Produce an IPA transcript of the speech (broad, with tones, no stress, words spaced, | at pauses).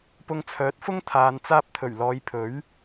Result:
pʊ˧ŋt͡sʰœː˨˥t̚fʊ˥ŋ t̪ʰaː˨n t͡saː˧p̚t̪ʰɵ˨˩ɥlɔː˨j pʰɵ˨˥ɥ